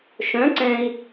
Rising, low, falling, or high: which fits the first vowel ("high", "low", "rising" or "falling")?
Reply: rising